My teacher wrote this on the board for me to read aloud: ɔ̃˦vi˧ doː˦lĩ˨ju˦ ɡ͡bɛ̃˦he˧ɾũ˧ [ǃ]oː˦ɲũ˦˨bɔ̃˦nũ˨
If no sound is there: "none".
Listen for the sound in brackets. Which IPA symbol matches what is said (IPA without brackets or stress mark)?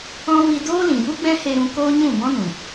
k